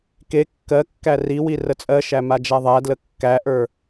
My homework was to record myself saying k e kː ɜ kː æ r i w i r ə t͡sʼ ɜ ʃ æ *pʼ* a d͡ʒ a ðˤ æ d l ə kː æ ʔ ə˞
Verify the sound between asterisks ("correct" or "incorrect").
incorrect